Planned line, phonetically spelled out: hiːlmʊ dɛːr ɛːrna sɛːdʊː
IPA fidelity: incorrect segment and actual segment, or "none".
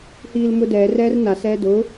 none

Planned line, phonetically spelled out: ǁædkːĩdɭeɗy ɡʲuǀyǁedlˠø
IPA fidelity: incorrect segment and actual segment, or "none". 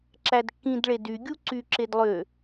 ɗ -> d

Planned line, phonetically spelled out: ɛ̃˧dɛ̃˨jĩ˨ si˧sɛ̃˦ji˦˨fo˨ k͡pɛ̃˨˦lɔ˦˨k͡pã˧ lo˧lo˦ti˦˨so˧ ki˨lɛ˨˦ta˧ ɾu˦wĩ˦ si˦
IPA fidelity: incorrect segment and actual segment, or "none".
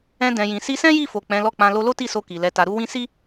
none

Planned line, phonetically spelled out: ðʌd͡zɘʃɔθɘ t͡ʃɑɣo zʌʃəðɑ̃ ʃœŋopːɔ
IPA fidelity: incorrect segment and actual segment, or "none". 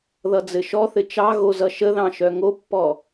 none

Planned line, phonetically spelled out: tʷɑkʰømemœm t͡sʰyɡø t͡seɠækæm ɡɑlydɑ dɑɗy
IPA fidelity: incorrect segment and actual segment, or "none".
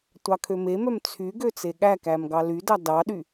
none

